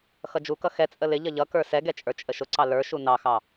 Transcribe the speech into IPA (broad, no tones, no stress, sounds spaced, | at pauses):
x ʌ d͡ʒ u k ʌ x ɛ t͡sʼ ə l ɪ ʎ ʌ ʎ ʌ k ə˞ s ɛ ɡ ɛ t͡ʃʼ ə˞ t͡ʃʼ ə ʃ ʊ ǀ ɑ l ə˞ ʃ u n ɑ x ɑ